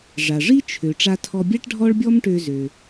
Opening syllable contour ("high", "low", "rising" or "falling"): low